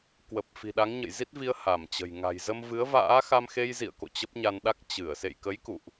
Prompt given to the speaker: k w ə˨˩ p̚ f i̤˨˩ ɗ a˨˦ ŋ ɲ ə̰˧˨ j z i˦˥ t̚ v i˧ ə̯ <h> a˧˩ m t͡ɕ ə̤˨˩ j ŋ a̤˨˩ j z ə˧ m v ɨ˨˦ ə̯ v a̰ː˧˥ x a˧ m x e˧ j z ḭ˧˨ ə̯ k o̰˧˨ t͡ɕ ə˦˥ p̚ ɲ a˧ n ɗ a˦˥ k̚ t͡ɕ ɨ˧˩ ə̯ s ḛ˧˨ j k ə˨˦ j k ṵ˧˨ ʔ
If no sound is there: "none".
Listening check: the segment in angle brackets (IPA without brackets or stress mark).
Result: h